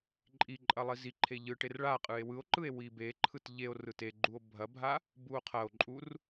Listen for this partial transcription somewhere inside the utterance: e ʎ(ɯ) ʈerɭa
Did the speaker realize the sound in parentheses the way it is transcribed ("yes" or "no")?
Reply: yes